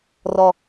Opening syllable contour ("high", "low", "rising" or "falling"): low